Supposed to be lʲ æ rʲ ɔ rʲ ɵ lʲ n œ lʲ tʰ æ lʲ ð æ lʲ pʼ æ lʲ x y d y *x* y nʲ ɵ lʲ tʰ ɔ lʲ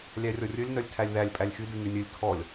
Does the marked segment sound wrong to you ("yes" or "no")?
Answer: yes